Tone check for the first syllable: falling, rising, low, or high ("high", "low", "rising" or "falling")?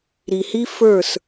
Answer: low